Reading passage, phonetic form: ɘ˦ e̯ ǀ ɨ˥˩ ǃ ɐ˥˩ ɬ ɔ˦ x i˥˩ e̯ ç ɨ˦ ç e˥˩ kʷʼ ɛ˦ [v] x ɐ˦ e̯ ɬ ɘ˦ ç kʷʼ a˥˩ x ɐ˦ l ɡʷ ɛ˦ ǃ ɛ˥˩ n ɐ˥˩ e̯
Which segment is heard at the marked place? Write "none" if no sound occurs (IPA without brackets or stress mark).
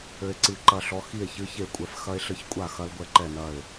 f